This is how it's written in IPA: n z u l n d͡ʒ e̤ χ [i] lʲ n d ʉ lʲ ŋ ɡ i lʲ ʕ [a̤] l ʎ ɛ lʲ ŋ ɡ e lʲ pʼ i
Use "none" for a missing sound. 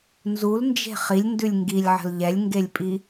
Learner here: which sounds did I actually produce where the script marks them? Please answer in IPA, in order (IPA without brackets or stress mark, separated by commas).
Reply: i, ə̤